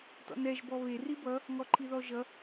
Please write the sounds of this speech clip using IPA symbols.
tɔ̰nɛʒ bɔβe ribʌ | ŋɔǃʰiðɔʒʌ

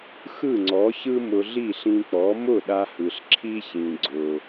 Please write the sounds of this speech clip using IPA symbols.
xɯ˥˩ŋ͡ǀɔ˩˥çɯ˥ mʊ˧ɮi˥˩ɬĩ˧k͡pɔ˩˥ mʊ˥˩ɗa˧hɯ˩ɬ ǁʰi˥çĩ˩ ɡ͡ǀʊ˩

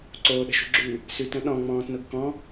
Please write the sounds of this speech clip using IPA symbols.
ǀoːɗə̤ʃṳɡ͡ǁʉː | sʉtə̃ ɗɔ̃ŋ͡mɔ̃ːtnʊɡ kɔ̃

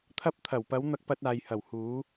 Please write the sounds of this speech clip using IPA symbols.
t̪ʰɐ˧p̚t̪ʰɐ˨˩wpɐ˨˧w n̪ɐ˧k̚pɐ˧t̚aː˨jhɐ˨˩w huː˨˧

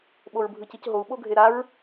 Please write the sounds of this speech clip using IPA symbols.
ɓoɹbʱɯcicɦou̯ ɓoɡʱeɾaɹ

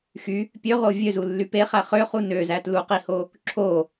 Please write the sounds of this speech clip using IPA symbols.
xy | pʲøʁo vʲøzulːy peχæ χøχu nøzæ tluqiho | ǁʰo

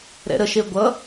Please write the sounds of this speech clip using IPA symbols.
ɾɛ̰ɾəʃe ɡʷʌ

